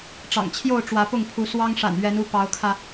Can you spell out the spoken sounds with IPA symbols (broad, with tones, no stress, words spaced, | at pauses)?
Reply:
ʈ͡ʂɑ̰˨˩ŋt͡ɕʰjo˥˨ʊ̯ ʈ͡ʂwä˨˦pʊ˥˨ŋpʰu˨˦ swɑ˦ŋʂa̰˨˩n ɥɛ˨˦nu˥˨ pɑ˨˦ʊ̯kʰä˧